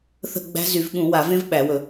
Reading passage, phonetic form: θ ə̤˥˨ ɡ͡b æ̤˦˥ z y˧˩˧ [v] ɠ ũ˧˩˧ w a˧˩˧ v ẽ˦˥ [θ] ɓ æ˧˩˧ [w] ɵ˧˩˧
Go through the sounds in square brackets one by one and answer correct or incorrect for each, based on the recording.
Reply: correct, incorrect, correct

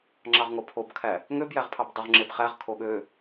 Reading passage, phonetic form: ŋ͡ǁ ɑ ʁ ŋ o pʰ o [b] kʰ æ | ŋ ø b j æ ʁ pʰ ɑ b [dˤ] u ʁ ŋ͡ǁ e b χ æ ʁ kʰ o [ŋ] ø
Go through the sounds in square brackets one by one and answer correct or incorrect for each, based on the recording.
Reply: correct, correct, incorrect

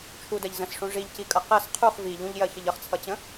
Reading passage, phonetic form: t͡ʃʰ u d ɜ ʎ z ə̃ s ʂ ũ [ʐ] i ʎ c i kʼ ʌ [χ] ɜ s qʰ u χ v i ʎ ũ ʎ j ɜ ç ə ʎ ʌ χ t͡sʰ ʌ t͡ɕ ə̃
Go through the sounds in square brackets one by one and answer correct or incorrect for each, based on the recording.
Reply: correct, incorrect

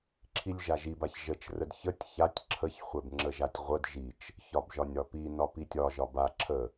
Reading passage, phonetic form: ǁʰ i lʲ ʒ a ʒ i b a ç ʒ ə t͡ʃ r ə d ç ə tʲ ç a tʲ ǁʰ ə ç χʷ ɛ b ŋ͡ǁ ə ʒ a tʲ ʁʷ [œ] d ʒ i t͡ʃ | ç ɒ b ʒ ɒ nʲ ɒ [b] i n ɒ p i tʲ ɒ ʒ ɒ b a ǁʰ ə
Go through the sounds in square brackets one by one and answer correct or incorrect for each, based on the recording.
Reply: incorrect, incorrect

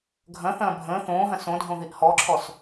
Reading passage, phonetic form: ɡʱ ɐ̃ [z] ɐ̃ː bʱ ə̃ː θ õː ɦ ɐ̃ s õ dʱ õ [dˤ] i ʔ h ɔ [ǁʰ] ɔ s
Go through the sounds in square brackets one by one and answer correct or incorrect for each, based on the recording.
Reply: incorrect, incorrect, correct

